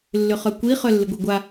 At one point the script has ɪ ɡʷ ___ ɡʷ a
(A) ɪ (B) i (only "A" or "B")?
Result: B